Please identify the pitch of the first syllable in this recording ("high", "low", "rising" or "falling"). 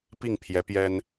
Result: falling